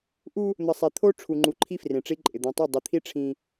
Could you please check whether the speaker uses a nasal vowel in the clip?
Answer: yes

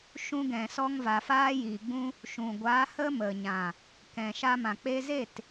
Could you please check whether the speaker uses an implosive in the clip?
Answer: no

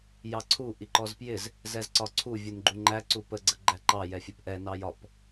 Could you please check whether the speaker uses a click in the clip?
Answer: yes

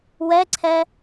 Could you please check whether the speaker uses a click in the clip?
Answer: yes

